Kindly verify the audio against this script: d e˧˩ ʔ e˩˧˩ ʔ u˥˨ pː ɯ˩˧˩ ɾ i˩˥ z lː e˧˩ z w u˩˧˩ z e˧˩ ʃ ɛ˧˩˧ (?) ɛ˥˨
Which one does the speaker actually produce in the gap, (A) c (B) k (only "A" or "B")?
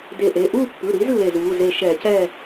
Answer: A